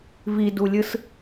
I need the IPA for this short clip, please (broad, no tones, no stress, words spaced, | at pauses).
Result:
vidulʲɯs